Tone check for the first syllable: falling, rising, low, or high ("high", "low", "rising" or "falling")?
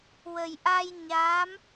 low